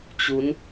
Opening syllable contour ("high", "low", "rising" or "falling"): rising